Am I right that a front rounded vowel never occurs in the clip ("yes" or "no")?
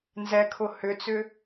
no